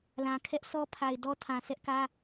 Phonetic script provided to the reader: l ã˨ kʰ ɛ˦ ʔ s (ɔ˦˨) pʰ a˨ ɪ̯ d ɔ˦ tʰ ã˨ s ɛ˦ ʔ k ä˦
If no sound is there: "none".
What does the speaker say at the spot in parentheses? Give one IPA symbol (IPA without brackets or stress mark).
ɔ˦